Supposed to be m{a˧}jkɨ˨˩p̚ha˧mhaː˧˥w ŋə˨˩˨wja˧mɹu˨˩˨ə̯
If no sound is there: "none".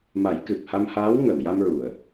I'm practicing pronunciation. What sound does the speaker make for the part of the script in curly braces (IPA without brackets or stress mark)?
a˨˩˦